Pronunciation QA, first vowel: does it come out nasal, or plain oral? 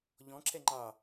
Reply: nasal